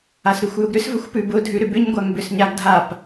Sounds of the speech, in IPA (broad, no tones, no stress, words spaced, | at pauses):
asɾʉxʷjʊɡɾʏs vəxʷpʉbʊ dʱʉɾʏbʏɲɡʷaŋ bʏsɲaɡdʱap